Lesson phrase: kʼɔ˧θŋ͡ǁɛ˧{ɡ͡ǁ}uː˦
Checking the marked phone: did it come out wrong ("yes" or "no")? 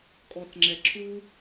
yes